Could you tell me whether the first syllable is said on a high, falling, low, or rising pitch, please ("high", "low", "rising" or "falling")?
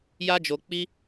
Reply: high